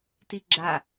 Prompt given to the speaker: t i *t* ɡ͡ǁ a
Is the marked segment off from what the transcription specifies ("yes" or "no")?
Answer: yes